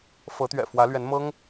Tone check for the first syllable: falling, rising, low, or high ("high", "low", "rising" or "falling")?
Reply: rising